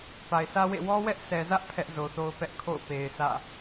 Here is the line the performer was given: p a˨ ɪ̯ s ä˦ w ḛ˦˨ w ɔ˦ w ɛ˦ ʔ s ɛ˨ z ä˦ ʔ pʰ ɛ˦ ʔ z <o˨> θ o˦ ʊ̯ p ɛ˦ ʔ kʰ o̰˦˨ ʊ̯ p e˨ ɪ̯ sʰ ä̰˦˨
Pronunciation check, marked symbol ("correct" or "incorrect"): correct